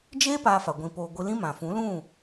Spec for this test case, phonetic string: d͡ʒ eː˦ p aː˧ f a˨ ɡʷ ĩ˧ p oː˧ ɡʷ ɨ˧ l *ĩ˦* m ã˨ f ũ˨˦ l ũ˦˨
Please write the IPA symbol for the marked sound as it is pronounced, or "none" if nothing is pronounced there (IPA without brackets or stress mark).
ĩ˦